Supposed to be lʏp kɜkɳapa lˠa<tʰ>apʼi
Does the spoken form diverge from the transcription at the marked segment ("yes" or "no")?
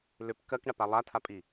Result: no